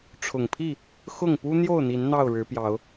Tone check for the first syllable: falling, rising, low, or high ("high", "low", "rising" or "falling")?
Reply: low